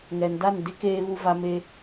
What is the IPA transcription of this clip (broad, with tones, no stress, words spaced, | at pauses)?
ŋɛ˨n da˦˨ndɪ˦ keː˦βu˦va˦ me˦